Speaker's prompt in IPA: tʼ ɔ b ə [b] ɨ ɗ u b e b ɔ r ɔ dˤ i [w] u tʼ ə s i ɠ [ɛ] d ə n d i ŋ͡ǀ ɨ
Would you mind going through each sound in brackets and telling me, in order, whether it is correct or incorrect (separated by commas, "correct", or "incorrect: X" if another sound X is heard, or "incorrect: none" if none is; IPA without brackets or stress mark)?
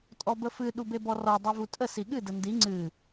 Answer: incorrect: f, incorrect: v, incorrect: ɨ